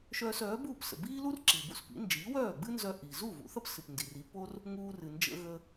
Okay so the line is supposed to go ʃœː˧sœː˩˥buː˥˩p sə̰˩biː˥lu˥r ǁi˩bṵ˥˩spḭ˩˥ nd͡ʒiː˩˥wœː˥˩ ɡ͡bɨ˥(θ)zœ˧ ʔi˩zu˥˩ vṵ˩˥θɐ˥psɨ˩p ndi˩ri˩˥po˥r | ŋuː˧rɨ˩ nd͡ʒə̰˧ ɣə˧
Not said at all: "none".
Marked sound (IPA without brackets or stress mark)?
n